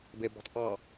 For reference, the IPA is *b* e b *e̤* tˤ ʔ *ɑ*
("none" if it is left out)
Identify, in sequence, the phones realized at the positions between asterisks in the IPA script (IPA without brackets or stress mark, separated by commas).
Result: b, e̤, ɑ